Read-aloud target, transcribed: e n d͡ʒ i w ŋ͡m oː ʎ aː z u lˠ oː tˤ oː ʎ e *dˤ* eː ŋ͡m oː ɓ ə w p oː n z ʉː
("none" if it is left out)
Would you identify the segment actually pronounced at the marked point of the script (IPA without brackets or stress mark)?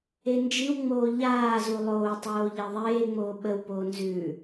ðˤ